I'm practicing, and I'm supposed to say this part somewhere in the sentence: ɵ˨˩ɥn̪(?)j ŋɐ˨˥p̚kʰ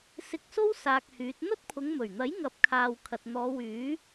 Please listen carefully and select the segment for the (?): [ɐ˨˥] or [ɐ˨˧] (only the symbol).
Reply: ɐ˨˥